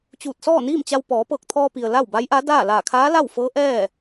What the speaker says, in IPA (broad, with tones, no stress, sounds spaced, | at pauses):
t͡ɕ uː˧˩ t̚ s ɔː˥˨ n iː˥˨ m t͡ɕ a˧ w p ɔː˩˧ p ɤː˧˩ k̚ t̪ʰ ɔː˧ p i˩ ə̯ l a˥˨ w b a˧˥ j ʔ a˧˥ d aː˥˨ l aː˧˩ kʰ aː˧˥ l a˥˨ w f ɤː˧˥ ʔ ɛː˥˨